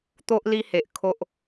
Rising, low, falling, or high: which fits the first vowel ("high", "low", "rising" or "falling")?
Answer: high